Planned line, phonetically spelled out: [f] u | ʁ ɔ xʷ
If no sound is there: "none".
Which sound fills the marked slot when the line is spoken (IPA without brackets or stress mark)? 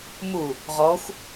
m